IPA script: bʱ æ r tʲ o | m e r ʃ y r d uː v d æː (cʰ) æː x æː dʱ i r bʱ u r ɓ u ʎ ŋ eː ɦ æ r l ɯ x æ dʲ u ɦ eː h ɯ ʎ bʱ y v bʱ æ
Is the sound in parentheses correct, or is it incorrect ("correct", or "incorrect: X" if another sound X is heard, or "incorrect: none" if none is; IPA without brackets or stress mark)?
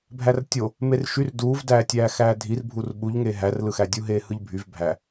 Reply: incorrect: tʲ